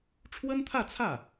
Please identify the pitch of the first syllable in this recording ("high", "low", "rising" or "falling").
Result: high